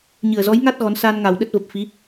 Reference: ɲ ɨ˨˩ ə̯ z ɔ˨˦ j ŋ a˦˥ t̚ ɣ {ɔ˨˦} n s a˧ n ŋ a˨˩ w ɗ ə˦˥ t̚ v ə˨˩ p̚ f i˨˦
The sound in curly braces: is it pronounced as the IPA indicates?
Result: yes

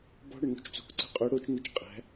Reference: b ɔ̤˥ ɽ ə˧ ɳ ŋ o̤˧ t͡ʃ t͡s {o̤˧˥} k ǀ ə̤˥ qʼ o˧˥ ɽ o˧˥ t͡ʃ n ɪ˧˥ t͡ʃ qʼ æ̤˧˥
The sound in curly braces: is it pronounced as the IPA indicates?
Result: yes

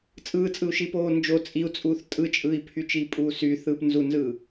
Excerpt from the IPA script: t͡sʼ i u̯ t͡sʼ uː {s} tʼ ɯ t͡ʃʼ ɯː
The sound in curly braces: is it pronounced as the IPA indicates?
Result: no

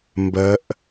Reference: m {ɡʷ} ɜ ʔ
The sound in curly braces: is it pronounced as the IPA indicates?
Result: no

